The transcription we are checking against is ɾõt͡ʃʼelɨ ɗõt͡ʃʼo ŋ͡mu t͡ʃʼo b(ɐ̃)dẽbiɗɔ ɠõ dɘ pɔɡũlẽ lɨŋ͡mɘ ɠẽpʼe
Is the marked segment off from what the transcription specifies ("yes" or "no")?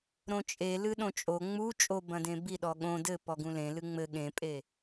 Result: no